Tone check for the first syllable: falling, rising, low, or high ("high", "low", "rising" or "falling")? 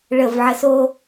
falling